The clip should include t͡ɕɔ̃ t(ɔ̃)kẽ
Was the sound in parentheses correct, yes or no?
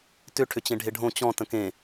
no